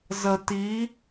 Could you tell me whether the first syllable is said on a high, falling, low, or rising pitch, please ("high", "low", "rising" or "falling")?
low